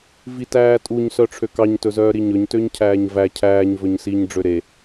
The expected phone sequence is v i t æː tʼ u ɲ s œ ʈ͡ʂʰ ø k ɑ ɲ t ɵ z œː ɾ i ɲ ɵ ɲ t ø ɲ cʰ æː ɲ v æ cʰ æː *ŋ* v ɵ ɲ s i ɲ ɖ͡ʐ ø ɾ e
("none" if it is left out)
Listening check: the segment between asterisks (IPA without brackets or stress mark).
ɲ